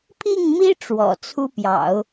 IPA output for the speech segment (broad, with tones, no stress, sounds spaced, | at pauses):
pʰ i˥˩ ŋ m i˥ ʈ͡ʂ w ɔ̰˨˩ t͡sʰ u˥ p j ɑ̰˨˩˦ ʊ̯